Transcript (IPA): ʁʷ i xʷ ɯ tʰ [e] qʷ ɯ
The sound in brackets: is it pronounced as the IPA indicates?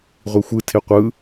yes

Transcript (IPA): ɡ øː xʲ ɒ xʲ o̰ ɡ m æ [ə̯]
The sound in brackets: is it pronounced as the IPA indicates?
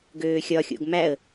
yes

